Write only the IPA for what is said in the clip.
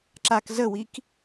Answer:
ǁ a k z ə w i k

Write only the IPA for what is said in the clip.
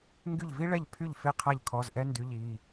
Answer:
ŋ ɡ y˥˩ ʎ v i˥ ɭ ɛ˥˩ ʎ pʰ y˥˩ ʎ f e˥˩ qʰ a˥˩ ʎ kʰ ɔ˧˥˧ z ʔ ɛ˥ n d y˧˥˧ ʎ i˧˥˧

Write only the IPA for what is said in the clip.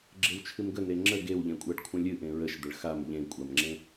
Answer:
ɡ͡ǁ e w t͡ʃʰ ɨ m ɡ ə n e ŋ͡ǁ ə ɡ e w ʎ ẽ kʷʼ a ɖ kʷʰ ə̃ lʲ ɨ ʔ ẽ ɹ ə ʃ d̪ ə ɭ x a m ʎ ẽ kʷʼ a m ŋ͡ǁ ẽ

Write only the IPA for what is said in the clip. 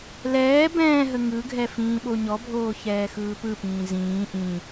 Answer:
l ɛː b ɛ̃ː ɦ ə ŋ ɯ ɡʱ ɛ f ĩː ɓ o ɲ ɔ bʱ oː ç ɛː x ɯː p ɯ p ĩː z ĩː ʔ ĩ

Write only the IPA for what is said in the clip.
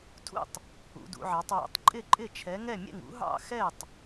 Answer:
tʰ ṵ˥˩ tˤ | ṵ˨˥ d ṵ˨˥ ʕ ɑ˨˥ tˤ w ɛ̰˨˥ tˤ ǃʼ ɪ˥˩ ǃʼ ɪ˥˩ t͡ʃʰ ɛ˨˥ ŋ ɛ˥˩ mʲ ɛ̰˥˩ ŋ ṵ˨˥ ɦ ɑ̰˥˩ x ɛ˥˩ tˤ

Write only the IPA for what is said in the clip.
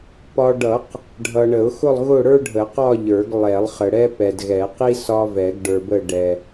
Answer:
p ɒ˨ ɖ ʌ˨˩˦ q | ɖʱ ʌ˨ ɳ ə˨˩˦ ʊ̯ x ʊ˥˧ lˠ ɣ ʊ˥˧ ɽ ə˞˥ ɖʱ ə˨˩˦ q ɒ˥˧ ʎ ə˞˨˩˦ ɡ lˠ ɛ˨˩˦ lˠ χ ə˨ ɽ ɛ˥ p ɛ˨ d ɣ ɛ˨˩˦ q i˥ s ɒ˥ v ɛ˨˩˦ ɡ ɖ ə˞˨ b ə˥˧ ɖ ɛ˨

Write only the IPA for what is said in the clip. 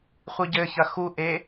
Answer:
χʷ i ɟ ɘ ç ɐ x u ʔ e

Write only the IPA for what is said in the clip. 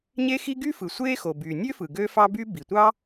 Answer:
ɲ e˥ x i˥ ɡ y˥ f ɯ˩ sʷ eː˥ x o˩ b yː˩ nʲ ø˥ f ɯ˩ ɡ ø˥ f ɑ˥ b y˥ b i˩ tʷ ɑ˥

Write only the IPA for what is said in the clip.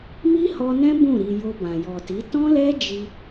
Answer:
m i˦ h ɔ˧ n ɛ̃˦ b ũ˦˨ ɾ i˨ j o˧ b ã˨ j ɔ˨ t i˨˦ t ɔ̃˦ l ɛ˦ d͡ʒ i˧

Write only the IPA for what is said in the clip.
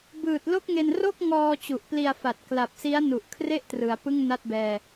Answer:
b ɯː˨˩ t̚ l o˥˩ k̚ ŋ e˧ n r o˥˩ k̚ ŋ ɔː˧ t͡ɕ u˨˩ ʔ p l i˧ a̯ f a˨˩ t̚ k l a˨˩ p̚ s i˦˥ a̯ n u˨˩ ʔ kʰ r e˥˩ ʔ t r ɯ˩˦ a̯ p ɯ˥˩ ŋ n a˥˩ t̚ b ɛː˧

